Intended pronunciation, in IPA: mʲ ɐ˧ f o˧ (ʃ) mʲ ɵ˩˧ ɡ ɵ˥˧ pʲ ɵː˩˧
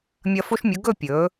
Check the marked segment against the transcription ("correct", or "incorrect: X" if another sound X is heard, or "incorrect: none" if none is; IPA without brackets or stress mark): correct